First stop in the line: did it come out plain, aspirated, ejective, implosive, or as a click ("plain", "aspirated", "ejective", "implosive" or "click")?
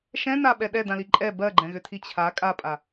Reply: implosive